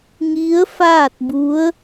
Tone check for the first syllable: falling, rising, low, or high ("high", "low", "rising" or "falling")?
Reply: rising